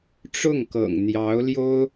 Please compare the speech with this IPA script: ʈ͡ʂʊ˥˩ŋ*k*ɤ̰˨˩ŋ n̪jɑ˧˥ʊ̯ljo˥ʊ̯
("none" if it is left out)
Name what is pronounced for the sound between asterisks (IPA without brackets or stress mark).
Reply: k